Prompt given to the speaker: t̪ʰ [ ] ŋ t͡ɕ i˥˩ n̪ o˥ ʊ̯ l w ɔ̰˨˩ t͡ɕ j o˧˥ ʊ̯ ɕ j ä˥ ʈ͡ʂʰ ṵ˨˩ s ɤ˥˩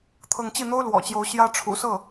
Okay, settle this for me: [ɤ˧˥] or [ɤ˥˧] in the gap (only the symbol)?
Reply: ɤ˥˧